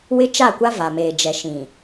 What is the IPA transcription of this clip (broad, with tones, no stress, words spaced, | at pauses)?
wɪ˦t͡ʃa˦˨kʷa˦ va˨meː˨ d͡ʒɛ˨ʃĩ˨